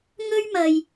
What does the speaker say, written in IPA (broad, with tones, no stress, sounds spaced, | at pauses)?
ŋ ɵ˥ ɥ m ɐ˨ j